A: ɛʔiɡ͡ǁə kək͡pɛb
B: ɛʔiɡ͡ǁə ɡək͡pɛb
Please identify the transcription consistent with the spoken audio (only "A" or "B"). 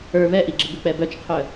B